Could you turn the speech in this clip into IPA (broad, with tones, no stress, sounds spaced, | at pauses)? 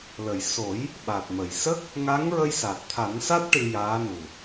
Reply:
l ə˨˩˨ j s o˨˩˦ j | ɓ a˨˩ t̚ m ə˨˩˨ j s ə˦˥ k̚ | ŋ a˧˥ ŋ ɹ ə˧ j s a˨˩ t̚ t̪ʰ a˨˩˦ n s a˦˥ t̚ ʈ ɨ˧ j aː˧˥ n u˨˩